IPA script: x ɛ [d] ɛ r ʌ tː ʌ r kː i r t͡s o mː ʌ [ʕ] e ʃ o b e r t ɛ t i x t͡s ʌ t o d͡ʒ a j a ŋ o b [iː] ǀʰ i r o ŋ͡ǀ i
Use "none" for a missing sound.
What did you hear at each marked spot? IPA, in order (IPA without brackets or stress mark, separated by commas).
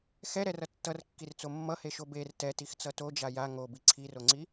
ɾ, h, i